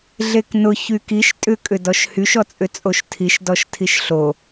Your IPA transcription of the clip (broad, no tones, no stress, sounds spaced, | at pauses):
ɮ e k n ʊ ç y k i ʃ tʼ ʏ kʼ ʏ d ɔ ʃ h y ʃ ɔ t͡sʼ ʏ t͡sʼ o ʃ tʰ i ʃ d ɔ ʃ tʰ i ʃ ɬ o